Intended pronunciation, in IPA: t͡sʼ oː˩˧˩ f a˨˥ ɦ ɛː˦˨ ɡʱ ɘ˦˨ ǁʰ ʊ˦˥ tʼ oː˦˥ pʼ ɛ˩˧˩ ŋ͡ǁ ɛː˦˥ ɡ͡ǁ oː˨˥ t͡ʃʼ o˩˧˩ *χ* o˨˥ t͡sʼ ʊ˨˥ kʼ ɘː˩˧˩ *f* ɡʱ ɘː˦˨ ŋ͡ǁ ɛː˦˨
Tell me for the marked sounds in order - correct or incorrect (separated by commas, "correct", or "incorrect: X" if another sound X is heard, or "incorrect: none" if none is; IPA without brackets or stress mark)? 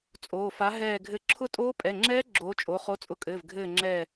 correct, incorrect: v